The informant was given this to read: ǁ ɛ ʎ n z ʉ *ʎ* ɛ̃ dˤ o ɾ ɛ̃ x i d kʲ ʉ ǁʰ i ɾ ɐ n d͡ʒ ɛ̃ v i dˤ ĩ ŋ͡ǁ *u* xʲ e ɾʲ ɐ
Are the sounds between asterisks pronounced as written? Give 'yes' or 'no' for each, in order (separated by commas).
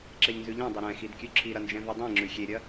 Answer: yes, no